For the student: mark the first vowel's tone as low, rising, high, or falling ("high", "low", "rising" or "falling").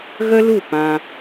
high